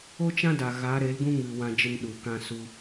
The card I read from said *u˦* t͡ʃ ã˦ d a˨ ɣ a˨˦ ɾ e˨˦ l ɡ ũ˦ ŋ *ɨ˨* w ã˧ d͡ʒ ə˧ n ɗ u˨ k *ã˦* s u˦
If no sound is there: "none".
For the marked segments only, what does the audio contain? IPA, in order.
o˦, ɨ˨, ã˦

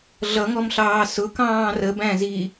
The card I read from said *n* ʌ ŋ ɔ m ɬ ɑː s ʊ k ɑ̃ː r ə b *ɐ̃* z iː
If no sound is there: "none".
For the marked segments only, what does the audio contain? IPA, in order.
ɮ, æ̃

